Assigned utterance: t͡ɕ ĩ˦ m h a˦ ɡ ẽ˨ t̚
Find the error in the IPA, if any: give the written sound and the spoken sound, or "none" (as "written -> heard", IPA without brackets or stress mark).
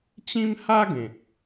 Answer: none